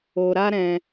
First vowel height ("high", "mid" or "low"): mid